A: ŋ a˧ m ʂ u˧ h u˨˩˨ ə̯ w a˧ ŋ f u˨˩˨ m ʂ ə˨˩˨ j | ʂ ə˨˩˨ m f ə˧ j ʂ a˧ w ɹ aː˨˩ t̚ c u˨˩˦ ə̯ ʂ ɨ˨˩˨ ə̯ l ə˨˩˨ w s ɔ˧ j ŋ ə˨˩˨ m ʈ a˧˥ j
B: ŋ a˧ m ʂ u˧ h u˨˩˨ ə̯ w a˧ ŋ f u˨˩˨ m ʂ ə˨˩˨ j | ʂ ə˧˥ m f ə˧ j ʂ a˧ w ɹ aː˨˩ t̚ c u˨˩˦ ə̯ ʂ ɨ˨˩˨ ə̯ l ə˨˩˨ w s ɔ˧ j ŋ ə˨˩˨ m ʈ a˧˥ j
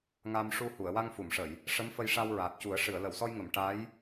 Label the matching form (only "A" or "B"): B